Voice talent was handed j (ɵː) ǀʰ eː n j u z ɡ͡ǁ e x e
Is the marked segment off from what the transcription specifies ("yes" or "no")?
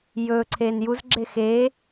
no